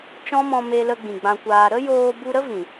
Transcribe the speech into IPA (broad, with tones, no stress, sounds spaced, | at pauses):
t͡ʃ ɔ̃˦ m ɔ̃˧ m e˧ l ə˧ ɡ͡b ĩ˨ ɡ͡b ã˧ kʷ aː˧ ɾ ə˦ j oː˧ b u˧ ɾ ə˦ v ĩ˨